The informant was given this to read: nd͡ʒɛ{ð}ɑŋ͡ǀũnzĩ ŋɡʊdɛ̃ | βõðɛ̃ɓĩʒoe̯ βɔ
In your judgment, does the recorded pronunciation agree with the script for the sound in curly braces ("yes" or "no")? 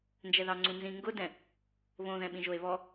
yes